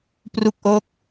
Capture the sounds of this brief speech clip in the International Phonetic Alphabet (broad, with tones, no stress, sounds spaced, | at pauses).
p r u˦˥ k̚ ʔ o˦˥ k̚